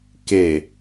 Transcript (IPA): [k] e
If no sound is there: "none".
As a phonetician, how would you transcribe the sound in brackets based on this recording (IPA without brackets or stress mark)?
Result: k